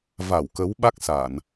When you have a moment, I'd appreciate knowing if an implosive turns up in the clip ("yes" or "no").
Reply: yes